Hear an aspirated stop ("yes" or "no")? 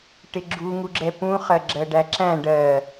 no